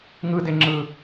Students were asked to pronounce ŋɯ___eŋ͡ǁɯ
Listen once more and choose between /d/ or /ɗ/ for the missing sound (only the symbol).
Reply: d